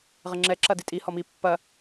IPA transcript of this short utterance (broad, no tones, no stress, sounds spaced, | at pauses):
ʁ ɘ ŋ͡ǁ ɛ ǁ ɐ d i tʼ i h ɔ m i pː ɐ